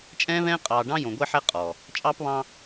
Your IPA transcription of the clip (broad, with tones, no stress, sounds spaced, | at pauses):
t͡ʃʼ ɛ̃ː˦ β ɛ̃ː˦ qʼ ɑː˨ ɖ ɑ̃˦ j õ˨ ɡʷ ɛ˦ ħ ɛ˦ qʼ ɔː˨ | t͡ʃʼ ɑː˦ p β ɑ̃ː˦